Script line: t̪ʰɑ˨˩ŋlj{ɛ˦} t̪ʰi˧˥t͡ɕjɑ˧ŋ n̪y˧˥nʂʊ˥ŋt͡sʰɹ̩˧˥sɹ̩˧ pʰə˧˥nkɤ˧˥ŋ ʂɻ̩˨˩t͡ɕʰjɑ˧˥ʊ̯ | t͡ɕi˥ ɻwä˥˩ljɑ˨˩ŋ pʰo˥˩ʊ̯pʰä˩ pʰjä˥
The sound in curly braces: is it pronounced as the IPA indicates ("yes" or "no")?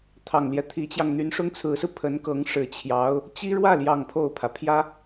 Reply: yes